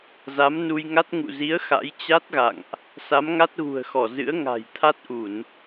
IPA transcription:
z a˨˦ m n u˧ j ŋ a˦˥ t̚ ŋ ṵ˧˨ z i˨˦ ə̯ x a̰˧˥ j t͡ɕ a˦˥ t̚ ɣ a̰˧˨ ŋ ʔ | s a˨˦ m ŋ a˦˥ t̚ ɣ ṳ˨˩ ə̯ x ɔ˧˩ z ɨ̰˧˥ ə̯ ŋ a̤˨˩ j t̪ʰ a˦˥ t̚ ʔ u˧˩˨ n

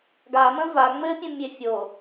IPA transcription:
ɡ a m ə̃ v a ŋ͡m ɘ pʲ ə̃ mʲ e fʲ o

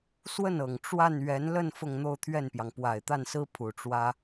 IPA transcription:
s w ə˥˩ n ɤ˨˩ ŋ ʈ͡ʂ w a˥˩ n ɥ ɛ˧˥ n l ə˥˧ n f ʊ˥˧ ŋ n̪ o˥˧ ʊ̯ t̪ʰ ɥ ɛ˥˩ n p j ɑ˩ ŋ p w a˨˩ ɪ̯ t̪ a˥˩ n s ɹ̩˥ pʰ u˨˩ ʈ͡ʂ w ä˥

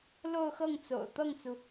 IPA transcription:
l o˥˧ ʊ̯ x ɤ˥˩ ŋ t͡s o̰˨˩ ʊ̯ t̪ ɤ˥˩ ŋ t͡s u˩

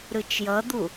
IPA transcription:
ɾ ɯ t͡ʃ j ʌ d̪ u

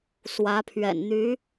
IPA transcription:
s w ä˧˥ pʰ ɥ ɛ̰˨˩ n n̪ y˧˥

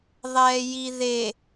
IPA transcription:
ðˤ ɛː j i ð e

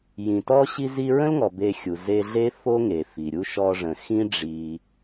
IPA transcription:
j ĩ˨ t ɔ˦ ɕ i˧ z i˧ ɹ ə̃˦ l ŋ ɔ˨ b e˧ xʲ u˨ z e˧ ɮ e˦ f o˦ ŋ e˨ f i˨ ɾʲ u˦ ʃ ɔ˧ ʐ ə̃˨ x ĩ˦ ɖ͡ʐ i˧

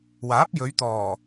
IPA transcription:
w aː˨˥ p̚ j ɵ˨˧ ɥ t̪ ɔː˨˩

